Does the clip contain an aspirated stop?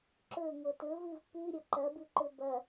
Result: no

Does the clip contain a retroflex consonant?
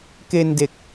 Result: no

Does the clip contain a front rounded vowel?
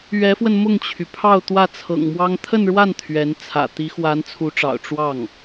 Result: yes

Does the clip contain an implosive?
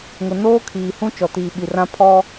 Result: yes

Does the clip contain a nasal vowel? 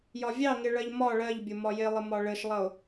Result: no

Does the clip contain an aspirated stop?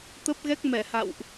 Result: no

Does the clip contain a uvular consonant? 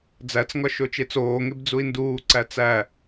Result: no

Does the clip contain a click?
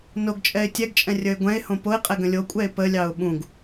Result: no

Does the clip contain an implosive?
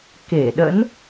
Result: yes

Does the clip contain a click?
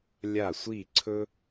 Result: yes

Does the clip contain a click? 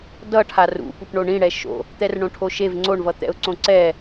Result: yes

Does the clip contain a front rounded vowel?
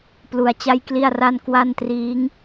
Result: no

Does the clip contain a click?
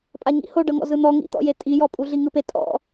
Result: no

